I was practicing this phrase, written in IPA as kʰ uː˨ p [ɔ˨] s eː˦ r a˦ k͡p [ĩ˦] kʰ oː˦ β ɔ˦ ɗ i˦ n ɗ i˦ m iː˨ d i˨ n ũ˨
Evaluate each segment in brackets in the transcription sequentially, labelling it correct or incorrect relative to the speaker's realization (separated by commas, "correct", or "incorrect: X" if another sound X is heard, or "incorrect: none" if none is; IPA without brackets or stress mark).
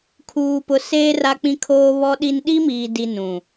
incorrect: ʊ˨, correct